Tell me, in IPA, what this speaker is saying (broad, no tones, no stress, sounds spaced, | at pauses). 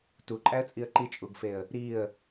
t u ǃʼ æ ə̯ t͡sʼ i ə̯ ǃ i t͡ʃʼ u ɡ f e ə̯ | ɾ i ə̯